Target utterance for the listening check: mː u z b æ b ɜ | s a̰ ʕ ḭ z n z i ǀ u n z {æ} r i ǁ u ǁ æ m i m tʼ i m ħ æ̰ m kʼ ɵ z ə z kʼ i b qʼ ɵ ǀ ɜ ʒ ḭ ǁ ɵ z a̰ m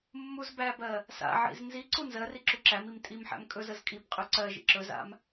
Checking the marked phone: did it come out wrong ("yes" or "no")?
yes